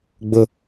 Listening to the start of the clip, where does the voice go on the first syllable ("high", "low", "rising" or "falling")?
high